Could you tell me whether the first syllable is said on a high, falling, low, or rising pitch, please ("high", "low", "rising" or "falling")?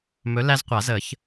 rising